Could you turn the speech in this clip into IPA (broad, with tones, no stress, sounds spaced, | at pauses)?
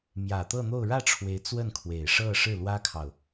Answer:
m j ä˨˩ t̪ ɤ˥˧ n̪ o˥˧ ʊ̯ ɻ ä˥˩ ʈ͡ʂʰ w e˧˥ ɪ̯ t͡s w ə˥˩ n kʰ w e˨˩ ɪ̯ ʂ ɤ˥˧ ʂ ɻ̩˥˩ l w ä˥ kʰ ɑ˨ ʊ̯